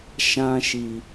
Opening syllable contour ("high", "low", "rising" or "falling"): high